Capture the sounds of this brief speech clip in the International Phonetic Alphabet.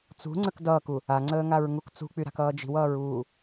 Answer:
t͡s ṳ ŋ͡ǀ ə k d ʌː k u | a ŋ͡ǀ əː ŋ a ɹ ŋ u k t͡s ṳ k͡p y ɾ a̤ k ʌː d͡ʒ i̤ w ʌː ɹ uː

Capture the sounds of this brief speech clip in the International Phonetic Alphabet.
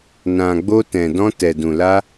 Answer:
n ã˨ ɡ͡b o˧ t ɛ̃˨ d ɔ̃˧ t ɛ˨ d ũ˨ l a˧

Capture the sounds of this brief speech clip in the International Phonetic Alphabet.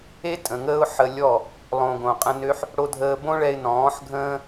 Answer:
e˦ tʼ ə̃˨ ŋ əː˦ ʊ̯ ħ ə˧ lʲ ɔ˦˨ | lˠ õː˨ ɡ õ˨ qʼ ə̃˧ n ø˦ ħ | ɽ o˧ dʱ əː˧ b õ˦ ɭ ɛ˧ ɪ̯ n ɔ̃ː˨˦ ħ ɡʱ ə̃ː˦

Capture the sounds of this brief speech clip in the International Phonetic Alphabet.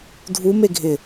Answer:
dʱ u m e ɡʱ ɪ

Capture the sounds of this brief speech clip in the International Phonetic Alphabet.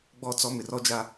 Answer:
ɡ͡b ɔ˦˨ t͡s ɔ˦ m ɪ˨ r ɔ˦ d͡ʒ a˦

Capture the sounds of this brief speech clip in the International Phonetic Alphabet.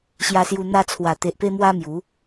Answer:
ɕ j a˧ s j u˧ n̪ a˧ t͡sʰ w a˨˩ t̪ e˨ ʔ p e˧ m w a˧ m j u˨˦

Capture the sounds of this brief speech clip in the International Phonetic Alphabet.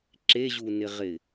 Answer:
ǁ e ʑ u n ɪ ʁ ɪ

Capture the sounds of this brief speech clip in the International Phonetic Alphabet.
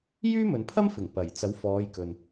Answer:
j yː˥ m ɵ˨ n pʰ ɐ˥ m f ɪ˨˩ ŋ p ɐ˨˩ j t͡s ɐ˨˥ w f ɔː˨˧ j k ɵ˨ n

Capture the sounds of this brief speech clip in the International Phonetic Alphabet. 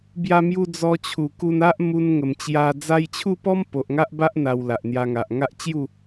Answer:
b j a˧ m j u˧ d͡z ɔ˧ t͡ɕʰ u˨˩ k u˧ n a˦ ʔ m u˧ n ŋ ə˨˩ m t͡ɕ j a˧ d͡z a˧ j t͡ɕʰ u˥˧ p ɔ˦ m p o˨ ʔ ŋ a˦ ʔ b a˦ ʔ n̪ a˧ w l a˨ ʔ n̪ j a˧ ŋ a˨ ʔ ŋ a˦ ʔ t͡ɕ j u˥˧

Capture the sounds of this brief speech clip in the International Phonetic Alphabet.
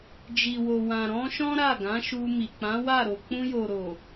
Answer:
d͡ʒ i˨ w o˨ w ã˨ ɾ ɔ̃˧ ʃ ɔ̃˦ ɾ a˦˨ ɡ ã˨˦ ʃ u˧ m i˨ k͡p ã˨˦ w a˦˨ ɾ o˨ k͡p ũ˧ j o˨ ɾ o˨

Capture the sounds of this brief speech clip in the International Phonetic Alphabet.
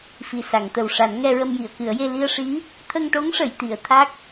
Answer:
f i˨˩ s a˨˩˨ ŋ t̪ ə˨˩ w ʂ a˨˩˦ n ŋ ɛ˧ ɹ ə˧ m j i˨˩˨ ə̯ k ɨ˨˩˦ ə̯ j e˧ l i˧ ə̯ ʂ i˧˥ | t̪ʰ ə˧ ŋ ʈ o˧˥ ŋ ʂ ə˨˩˨ j t̪ i˨˩˨ ə̯ t̪ʰ a˦˥ k̚

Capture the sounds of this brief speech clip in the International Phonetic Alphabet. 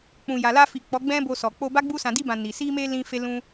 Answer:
k͡p ũ˨ j a˨ l a˧ f i˨ k͡p ɔ˨˦ ɡ͡b ɛ̃˦ b o˧ s ɔ˨ k͡p o˧ b a˦ ɡ͡b u˧ s ã˨ d i˧ b ã˨ n i˨ s i˧ m e˧ l ĩ˧ f e˧ l ũ˧

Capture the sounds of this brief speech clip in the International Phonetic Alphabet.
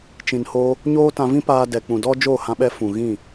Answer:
t͡ʃ ĩ˨ n h o˧ | ɲ oː˦ t ã˧ v ĩ˦ p aː˧ d ɛ˨ k͡p ũ˨ d ɔ˦ d͡ʒ o˦˨ h ã˧ ɓ ɛ˧ f ũ˨ ɣ ĩ˦˨

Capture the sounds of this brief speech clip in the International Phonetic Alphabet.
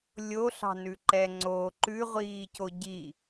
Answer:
lʲ o ɬ ɑ̤ n ʉ ǃ ɛ ŋ͡ǀ o ǃ ʉ ʁʷ iː c o ɟ i

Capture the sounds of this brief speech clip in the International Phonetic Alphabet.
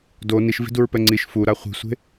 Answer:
d o n i ʃ v i̤ d u ɹ p ɛ ŋ͡ǀ i ʃ f u ɾ a χʷ i̤ sʷ e̤

